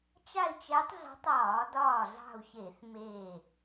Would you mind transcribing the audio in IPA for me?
t͡ʃa˥˧i̯t͡ʃɛ˧˥tˤɮɑ̤˧˥tˤ ɒː˧˩˧dɒː˧˩ɮɑ̤˧˩u̯ çe˧˩˧θmeː˧˩

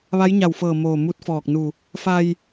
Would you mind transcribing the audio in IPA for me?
ʋa˧˥jɲa˧˩wfɤː˧˩ moː˧˩mu˧˥t̚fɔː˧˩k̚nu˧˩ | fa˧j

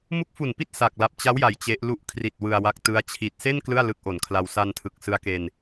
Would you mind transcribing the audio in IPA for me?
mu˦˥k̚fu˨˩npi˦˥t̚ sa˨˩k̚la˨˩p̚t͡ɕa˦˥wja˩˦j t͡ɕe˦˥ʔlu˥˩ʔ kʰri˨˩t̚ wɯ˧a̯wa˦˥k̚tɯ˦˥a̯ t͡ɕʰi˨˩t̚se˥˩n klɯ˥˩a̯lɯ˦˥k̚ʔo˨˩nkʰla˧w sa˧ntʰɯ˨˩k̚sɯ˦˥a̯ ke˧n

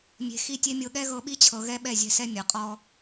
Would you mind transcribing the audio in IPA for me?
mʲe̤˨xi˦˨tʲe˦mʲɤ˧ ɠɛ˦ɣɤ˧ɓi˦t͡ɕʰɤ˨ ɣɛ˦ɓɛ˦˨zʲɛ̤˦˨ sɛ˦ mʲɤ˨qʼɔ˦

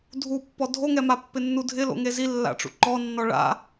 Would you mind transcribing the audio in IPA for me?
dʱupːɔ dʱoŋɛma pːɪnːudʱɪlo̰ ŋezilːa̰ʈ͡ʂṵ ǃɔnːɔ ɭa̰

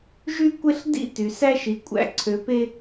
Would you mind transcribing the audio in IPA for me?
ʒy˦kʷe˦ɬ dḭ˦ ty˨ sæ˦ʃi˨kʷʼæ̰˦˨ ǀʰø˨pe˦

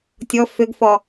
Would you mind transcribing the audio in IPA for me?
tʲɔ fʏɡfɔ

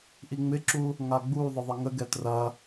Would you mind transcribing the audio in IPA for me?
ʔiŋ͡mɪǁu | ŋaɡ͡bu ðˤəðˤəŋəɡɛ trɐ

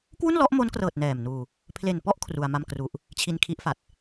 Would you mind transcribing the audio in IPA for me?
kwu˥˩nlɔ˦˥ʔmo˦˥nkrɤː˨˩t̚ nɛː˨˩mnuː˧ | pʰle˨˩npɔ˥˩ʔ kʰru˧a̯ma˥˩mkru˥˩ʔ | t͡ɕʰi˧nkʰi˦˥ʔfa˨˩t̚

